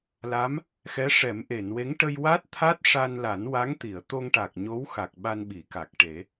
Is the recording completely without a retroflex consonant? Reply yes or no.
no